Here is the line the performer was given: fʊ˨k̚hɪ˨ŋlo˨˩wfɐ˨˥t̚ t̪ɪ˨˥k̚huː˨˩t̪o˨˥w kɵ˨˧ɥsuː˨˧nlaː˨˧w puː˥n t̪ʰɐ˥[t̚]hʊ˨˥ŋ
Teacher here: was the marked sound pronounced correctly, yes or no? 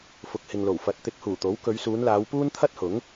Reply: yes